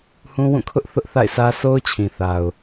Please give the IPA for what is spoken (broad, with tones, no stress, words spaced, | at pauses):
hũ˦wũ˦˨kʰʊ˦ʔ θʊ˦ʔθa̰˦˨ɪ̯sä˦sʰo˦ʊ̯ t͡ɕʰĩ˨θa˨ʊ̯